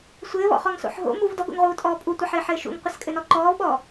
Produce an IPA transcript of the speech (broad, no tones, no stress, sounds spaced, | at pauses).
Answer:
sʷ ɘː v ɔ̰ χ ɔ ŋ s o̰ ħ ɦ o̰ m u v d ɔ ɡ o̰ ŋ ʁ uː tʼ ɔː pʼ u tʷ ɐ ħ ɘː ħ ɘː ʃ ṵ ŋ qʷ ɘ s kʼ ɘ n ɔ ǃ ɔː v ɓ ɔː